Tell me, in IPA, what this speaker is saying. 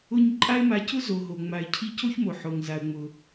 ʊ˦ ɲ ǃʼ a˦ ɪ̯ m a˨ c ʊ˥ z o˨ ɦ o˩ ŋ͡m a˨ ɪ̯ cʰ i˦ c o˥ ç m o˩ ħ o˩ ŋ z a˩ ə̯ ŋ͡m ʊ˩

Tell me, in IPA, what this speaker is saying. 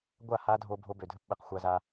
ɡʷ a˦˨ h a˦ dʱ o˧ bʱ o˧ b ø˨ dʱ ɘ˧ p ɓ ɘ˨ q xʷ a˧ z a˧

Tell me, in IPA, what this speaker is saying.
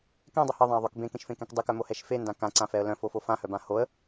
k ɛ̃ dˤ ʌ h ɪ ðˤ ã ə̯ ðˤ œ k b ẽ k ẽ ʃ f ẽ k ɛ̃ k dˤ ɪ k œ m o h ɛ ʃ f e n d ã k ã ǀ ã f ɛ ə̯ l œ̃ f o f o f ã h œ b ã h o ə̯

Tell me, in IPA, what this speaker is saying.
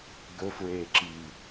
ɡ ɵ f ɹ eː ǁ iː

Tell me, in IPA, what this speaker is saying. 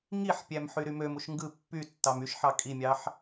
ŋ i ħ pʲ æ m ħ y ɾ y m ø m u ʃ ŋ ɡ ɯ pː y tː ɑ m y ʃ ħ ɑ kʼ i mʲ ɑ ħ

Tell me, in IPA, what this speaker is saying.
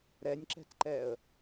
ɾ ɛ nʲ ǁ ɛ̤ t ǃ ɛ ə̯

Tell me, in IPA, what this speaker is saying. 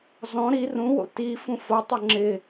z ɔ̃ ɾ i r ũ w o̰ t i f ũ f o tˤ ɵ ŋ͡ǁ ɪ

